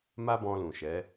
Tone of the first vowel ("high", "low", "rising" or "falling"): high